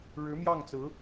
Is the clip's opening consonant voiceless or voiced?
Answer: voiced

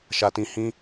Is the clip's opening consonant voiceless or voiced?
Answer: voiceless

